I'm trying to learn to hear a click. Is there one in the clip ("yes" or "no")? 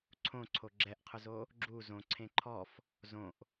yes